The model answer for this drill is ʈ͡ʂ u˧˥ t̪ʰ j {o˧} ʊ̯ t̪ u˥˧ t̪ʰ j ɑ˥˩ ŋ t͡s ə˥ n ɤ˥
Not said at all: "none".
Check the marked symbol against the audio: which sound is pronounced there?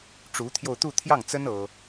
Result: o˧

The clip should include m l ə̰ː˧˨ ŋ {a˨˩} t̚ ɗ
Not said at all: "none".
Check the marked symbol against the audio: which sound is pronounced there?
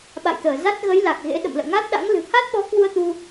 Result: a˦˥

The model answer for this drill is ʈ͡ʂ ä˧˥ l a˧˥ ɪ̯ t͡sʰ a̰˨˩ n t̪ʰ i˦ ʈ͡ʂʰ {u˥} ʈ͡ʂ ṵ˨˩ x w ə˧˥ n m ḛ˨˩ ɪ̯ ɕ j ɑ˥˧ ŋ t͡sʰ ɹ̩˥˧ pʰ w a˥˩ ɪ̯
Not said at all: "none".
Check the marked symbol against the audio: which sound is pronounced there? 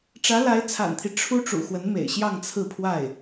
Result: u˥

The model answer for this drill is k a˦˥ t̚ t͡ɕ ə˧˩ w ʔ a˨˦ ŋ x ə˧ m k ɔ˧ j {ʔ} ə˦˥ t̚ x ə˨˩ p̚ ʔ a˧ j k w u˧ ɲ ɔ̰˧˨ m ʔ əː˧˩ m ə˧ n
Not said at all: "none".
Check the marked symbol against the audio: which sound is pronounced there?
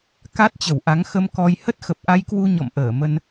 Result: h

